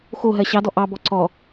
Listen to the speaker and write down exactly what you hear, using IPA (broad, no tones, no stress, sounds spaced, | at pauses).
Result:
x o ɦ ɜ ɕ ɑ d ɔ ʔ ɑ b ɔ ǀ ɔ